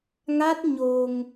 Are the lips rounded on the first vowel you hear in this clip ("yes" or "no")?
no